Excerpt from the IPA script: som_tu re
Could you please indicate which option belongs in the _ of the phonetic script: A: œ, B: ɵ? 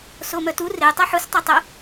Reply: A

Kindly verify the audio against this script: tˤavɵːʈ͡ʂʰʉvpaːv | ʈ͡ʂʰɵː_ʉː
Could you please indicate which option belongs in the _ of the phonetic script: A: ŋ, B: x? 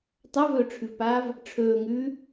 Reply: A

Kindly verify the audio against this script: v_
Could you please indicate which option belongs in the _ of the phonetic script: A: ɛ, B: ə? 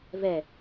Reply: A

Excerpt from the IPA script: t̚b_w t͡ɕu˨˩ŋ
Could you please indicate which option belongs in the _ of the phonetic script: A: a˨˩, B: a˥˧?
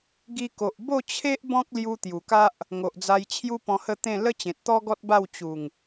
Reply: B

